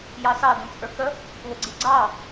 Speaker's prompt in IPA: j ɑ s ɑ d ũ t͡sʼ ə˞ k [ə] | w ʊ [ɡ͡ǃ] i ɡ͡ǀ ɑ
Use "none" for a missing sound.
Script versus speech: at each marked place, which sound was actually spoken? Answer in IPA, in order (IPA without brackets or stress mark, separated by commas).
ə, ɡ͡ǀ